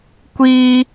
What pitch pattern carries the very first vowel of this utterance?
high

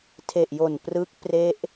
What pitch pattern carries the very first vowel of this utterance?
low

